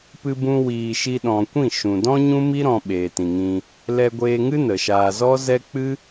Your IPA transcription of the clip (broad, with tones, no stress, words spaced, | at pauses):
pɨ˧bũ˧ wiː˨ʃi˧ɗɔ̃˨kʷĩ˦˨ ʃũ˨dɔ̃˦ɲũ˦mi˦ ɾɔ̃˧ɓeː˨tĩ˨ŋĩ˧ | lɛ˧ɡʷeː˧ŋɨ˦ nə˨ʃaː˧ zɔ˦zɛ˦ k͡pɨ˦